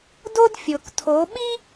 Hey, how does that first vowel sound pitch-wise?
high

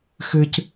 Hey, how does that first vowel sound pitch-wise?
high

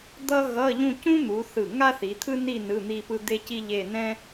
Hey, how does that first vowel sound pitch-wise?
high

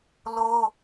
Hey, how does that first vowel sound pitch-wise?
high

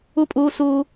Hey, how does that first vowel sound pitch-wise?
falling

